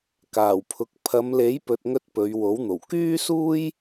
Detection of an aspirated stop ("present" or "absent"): present